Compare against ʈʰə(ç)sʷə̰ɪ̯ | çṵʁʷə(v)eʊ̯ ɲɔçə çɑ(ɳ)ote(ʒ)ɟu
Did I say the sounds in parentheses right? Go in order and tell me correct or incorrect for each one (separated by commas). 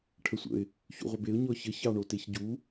incorrect, incorrect, correct, incorrect